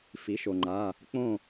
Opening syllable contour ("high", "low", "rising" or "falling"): rising